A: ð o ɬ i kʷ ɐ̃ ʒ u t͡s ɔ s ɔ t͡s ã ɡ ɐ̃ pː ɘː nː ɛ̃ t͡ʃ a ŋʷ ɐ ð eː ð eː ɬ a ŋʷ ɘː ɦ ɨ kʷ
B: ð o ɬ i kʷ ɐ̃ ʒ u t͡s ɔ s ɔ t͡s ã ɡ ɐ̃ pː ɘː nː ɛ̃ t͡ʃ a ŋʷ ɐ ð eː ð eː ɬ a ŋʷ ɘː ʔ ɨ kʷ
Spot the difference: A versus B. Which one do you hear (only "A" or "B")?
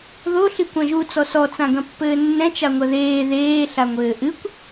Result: B